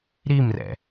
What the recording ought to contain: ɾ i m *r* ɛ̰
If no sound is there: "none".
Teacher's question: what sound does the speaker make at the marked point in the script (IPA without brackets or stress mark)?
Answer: r